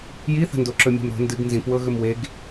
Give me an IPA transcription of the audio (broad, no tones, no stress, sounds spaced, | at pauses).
j i θ ə̤ n d o ǁ ɵ mʲ e̤ m ɾ o̤ n d ɨ ɡ n z ĩ p w ɤ ɣ ɵ m w e ɡ